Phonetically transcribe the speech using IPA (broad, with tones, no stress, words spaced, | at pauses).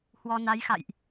hwɔ˧na˨˦jxa̰˧˨jʔ